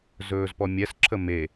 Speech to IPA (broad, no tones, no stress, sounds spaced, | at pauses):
z ɵː z p ɔ mʲ ɛ s ǁʰ ə m e